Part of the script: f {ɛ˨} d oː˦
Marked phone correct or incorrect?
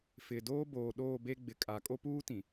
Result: incorrect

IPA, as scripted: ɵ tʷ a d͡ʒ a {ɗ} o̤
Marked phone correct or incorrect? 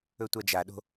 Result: correct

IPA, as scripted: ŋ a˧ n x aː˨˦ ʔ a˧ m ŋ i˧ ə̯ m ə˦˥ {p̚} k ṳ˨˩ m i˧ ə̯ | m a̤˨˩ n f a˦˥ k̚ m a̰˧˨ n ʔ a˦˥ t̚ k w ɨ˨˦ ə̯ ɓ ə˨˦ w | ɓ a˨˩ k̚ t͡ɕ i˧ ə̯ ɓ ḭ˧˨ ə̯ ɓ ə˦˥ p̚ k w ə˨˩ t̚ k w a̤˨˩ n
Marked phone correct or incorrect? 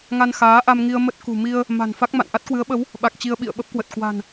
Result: incorrect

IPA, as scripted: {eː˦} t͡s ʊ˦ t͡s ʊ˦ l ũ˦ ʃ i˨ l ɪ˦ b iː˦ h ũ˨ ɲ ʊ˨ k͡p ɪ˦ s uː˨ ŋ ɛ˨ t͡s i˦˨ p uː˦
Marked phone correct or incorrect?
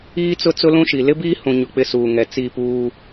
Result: incorrect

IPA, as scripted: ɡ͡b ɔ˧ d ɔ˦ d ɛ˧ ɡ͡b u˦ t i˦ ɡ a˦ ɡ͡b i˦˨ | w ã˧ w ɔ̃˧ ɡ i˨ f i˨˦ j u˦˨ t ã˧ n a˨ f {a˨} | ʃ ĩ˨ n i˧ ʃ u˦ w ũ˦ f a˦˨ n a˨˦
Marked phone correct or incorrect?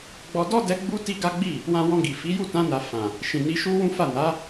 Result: incorrect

